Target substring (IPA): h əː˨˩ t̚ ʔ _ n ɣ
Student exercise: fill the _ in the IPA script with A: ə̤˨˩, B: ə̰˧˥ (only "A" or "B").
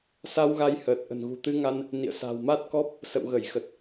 A